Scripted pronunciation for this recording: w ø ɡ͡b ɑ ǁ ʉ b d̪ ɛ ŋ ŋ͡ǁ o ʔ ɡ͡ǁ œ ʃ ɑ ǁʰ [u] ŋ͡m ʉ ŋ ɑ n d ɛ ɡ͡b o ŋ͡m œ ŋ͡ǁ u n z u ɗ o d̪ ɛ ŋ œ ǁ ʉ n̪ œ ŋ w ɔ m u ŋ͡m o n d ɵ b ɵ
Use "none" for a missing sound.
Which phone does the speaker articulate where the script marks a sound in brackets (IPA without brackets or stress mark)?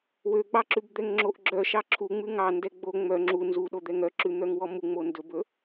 u